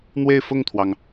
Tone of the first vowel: falling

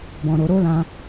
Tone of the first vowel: low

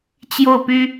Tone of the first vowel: falling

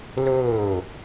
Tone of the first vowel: falling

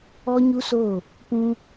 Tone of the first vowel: high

